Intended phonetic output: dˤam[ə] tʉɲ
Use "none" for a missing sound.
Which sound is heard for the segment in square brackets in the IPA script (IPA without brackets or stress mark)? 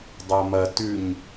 ɐ